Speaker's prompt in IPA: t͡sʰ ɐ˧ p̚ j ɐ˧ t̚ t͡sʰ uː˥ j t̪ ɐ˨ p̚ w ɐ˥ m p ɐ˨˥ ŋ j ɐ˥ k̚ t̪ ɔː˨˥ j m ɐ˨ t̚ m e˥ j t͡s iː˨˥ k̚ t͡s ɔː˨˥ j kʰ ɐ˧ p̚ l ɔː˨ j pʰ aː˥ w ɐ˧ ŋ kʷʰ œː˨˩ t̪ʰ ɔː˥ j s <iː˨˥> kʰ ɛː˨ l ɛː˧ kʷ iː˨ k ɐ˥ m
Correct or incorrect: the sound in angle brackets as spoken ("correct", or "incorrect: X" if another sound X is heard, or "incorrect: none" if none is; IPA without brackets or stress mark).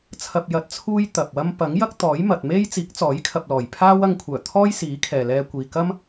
correct